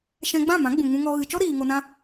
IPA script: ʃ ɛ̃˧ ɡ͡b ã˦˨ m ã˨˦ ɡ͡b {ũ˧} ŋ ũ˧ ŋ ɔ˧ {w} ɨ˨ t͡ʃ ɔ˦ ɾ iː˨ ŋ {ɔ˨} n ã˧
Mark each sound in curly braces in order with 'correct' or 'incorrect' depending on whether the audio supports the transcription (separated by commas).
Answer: incorrect, incorrect, incorrect